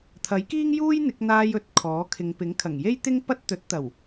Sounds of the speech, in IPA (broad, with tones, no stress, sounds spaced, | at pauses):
t̪ʰ ɐ˨˥ j k iː˥ ŋ j uː˥ j n̪ ɪ˨˥ k̚ n̪ aː˧ j ɵ˨˥ t̚ kʰ ɔː˨˥ kʰ ɪ˨˧ ŋ p ɪ˨˥ ŋ kʰ ɐ˨˩ ŋ j e˥ j t̪ ɪ˥ ŋ p ɐ˥ t̚ t̪ ɵ˨˥ t̚ t̪ ɐ˨˩ w